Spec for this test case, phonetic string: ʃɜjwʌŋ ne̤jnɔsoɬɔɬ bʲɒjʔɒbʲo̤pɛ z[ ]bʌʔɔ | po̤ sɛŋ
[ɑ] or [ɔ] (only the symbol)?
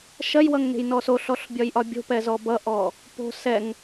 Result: ɔ